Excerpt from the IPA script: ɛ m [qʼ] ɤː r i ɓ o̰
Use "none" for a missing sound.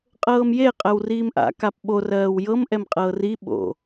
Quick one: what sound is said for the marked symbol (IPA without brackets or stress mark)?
qʼ